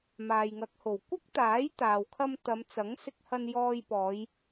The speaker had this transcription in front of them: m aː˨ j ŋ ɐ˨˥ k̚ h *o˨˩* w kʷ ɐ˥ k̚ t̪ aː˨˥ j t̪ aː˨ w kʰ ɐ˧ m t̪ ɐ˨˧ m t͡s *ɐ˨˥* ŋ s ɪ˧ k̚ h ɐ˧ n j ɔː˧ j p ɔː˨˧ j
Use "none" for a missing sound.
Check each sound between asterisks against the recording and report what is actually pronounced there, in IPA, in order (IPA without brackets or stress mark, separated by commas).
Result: o˨˩, ɐ˨˥